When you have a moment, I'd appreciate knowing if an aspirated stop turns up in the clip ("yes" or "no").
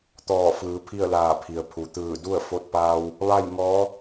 yes